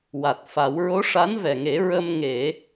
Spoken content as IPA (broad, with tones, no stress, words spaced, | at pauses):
wa˨˩t̚fa˨˩˦w ɹo˧˥ʂa˧˥nvɛ˨˩ŋe˨˩˦ ɹə˧mŋe˨˩˦